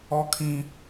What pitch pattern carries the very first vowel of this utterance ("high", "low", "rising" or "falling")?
high